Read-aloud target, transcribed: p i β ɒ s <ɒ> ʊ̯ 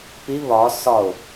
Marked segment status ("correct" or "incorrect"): correct